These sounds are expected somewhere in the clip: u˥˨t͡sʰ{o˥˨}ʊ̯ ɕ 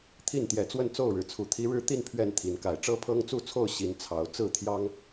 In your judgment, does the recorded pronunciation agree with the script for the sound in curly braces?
yes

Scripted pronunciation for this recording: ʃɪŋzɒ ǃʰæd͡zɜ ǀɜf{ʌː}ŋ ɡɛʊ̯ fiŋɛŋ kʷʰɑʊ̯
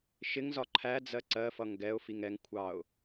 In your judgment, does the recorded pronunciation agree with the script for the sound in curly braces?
no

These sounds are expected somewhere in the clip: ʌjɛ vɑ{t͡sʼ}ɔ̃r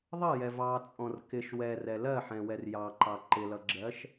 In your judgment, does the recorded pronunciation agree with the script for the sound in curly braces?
yes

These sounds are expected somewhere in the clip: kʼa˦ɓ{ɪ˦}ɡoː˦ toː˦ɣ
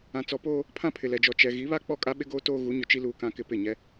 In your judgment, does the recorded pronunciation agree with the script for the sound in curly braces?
yes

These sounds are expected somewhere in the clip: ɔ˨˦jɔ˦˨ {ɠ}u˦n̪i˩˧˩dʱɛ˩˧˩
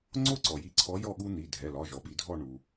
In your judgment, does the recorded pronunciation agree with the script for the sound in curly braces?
yes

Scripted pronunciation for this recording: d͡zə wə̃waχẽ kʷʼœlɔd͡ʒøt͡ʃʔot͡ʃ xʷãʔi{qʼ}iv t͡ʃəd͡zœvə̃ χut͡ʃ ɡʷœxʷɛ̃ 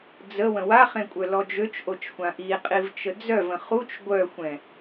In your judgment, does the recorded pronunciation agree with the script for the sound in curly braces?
yes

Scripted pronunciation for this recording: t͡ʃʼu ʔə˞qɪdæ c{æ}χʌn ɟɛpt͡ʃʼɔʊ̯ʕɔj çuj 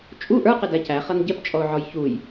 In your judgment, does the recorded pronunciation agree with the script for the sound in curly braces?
yes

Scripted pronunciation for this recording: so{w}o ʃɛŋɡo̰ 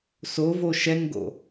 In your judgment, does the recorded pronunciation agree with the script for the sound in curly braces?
no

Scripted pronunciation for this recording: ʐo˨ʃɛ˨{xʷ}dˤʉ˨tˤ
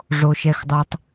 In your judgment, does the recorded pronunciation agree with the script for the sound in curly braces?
no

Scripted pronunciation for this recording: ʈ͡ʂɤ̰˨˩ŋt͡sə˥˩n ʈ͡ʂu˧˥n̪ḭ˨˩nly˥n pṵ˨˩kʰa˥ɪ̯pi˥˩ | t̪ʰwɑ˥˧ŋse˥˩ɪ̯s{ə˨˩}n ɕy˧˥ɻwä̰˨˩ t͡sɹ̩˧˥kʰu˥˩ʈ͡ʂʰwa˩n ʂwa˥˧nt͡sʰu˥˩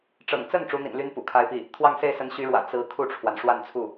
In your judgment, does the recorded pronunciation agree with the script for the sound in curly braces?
no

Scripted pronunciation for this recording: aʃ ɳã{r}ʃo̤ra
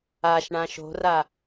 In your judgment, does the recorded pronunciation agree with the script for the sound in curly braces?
no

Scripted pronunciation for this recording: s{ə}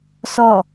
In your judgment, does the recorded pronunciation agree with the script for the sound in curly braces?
no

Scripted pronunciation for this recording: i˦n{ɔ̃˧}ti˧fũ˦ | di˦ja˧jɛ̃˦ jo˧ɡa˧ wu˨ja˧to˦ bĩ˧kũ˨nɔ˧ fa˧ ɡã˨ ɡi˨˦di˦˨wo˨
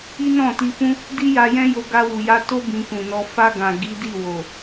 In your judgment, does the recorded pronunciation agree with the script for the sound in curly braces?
no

